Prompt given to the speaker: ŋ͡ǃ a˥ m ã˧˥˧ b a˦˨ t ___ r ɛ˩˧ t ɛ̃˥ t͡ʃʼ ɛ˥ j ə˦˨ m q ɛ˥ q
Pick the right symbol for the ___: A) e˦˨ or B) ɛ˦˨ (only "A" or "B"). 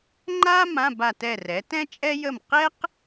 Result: B